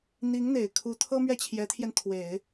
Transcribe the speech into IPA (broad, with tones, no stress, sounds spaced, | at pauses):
n̪ i˧˥ ŋ n̪ e˨˩ ɪ̯ kʰ u˧˥ t̪ʰ ɤ˥ m ɥ ɛ˥˩ t͡ɕʰ j ɛ˧˥ t̪ʰ j ɛ˧ n t̪ʰ w e˨˩˦ ɪ̯